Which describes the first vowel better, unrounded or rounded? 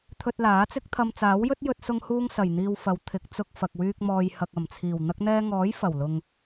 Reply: rounded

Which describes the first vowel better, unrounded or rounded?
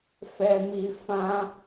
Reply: unrounded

